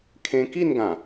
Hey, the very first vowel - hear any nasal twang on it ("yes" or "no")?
yes